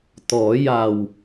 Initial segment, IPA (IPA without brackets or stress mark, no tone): t̪